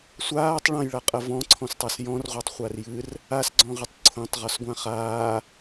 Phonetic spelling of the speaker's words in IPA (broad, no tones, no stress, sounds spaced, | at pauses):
sʷ aː tˤ ɭ ɐ̃ j ɭ a qʼ ɐ v ɔ̃ ǀʰ ɔ̃ s tˤ a s j ɔ̃ r ʁʷ a tˤ χʷ a r j ɨ r | a s ɡ͡ǀ ɔ̃ ʁ ɨ tˤ ǀʰ õ tˤ ʁ ɔ s ɡʷ ã χ aː